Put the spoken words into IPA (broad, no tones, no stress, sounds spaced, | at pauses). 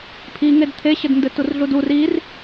pʰ i ŋ e d t̪ʰ e ɕ ɘ d n d ɘ t u r ɮ u d u r i r